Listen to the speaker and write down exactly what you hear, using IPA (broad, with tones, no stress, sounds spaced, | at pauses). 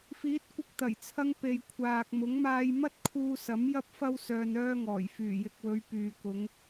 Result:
f iː˨˥ t̚ kʷ ɪ˧ k̚ t̪ ɐ˨˩ j t͡sʰ ɐ˧ ŋ p e˨ j kʷʰ aː˨ k̚ m ʊ˨˥ ŋ m aː˧ j m ɐ˥ t̚ kʰ uː˧ s ɐ˨˥ m j ɐ˧ p̚ f ɐ˧ w s œː˧ n œː˥ ŋ ɔː˨˩ j f yː˨˩ j ɪ˨ k̚ w ɵ˨˧ ɥ p yː˨ k ʊ˨˧ ŋ